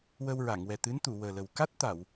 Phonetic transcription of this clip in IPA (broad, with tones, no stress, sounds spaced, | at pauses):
w ə˧ w ɹ a˨˩˨ ŋ w ɛ˨˩ t̪ ɨ˧˥ n t̪ u˨˩˨ w əː˨˩ l ə˨˩ w k a˦˥ t̚ t̪ a˨˩˨ w